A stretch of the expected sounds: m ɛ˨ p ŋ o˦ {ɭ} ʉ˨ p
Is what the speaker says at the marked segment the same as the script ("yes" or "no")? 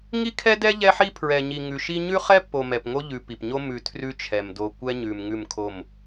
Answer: no